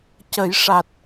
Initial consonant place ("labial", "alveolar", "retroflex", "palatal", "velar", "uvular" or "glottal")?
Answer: palatal